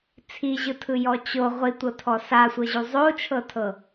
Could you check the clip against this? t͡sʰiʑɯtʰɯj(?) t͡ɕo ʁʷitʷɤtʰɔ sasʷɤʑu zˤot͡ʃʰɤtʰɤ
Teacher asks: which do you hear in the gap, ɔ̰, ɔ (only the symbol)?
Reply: ɔ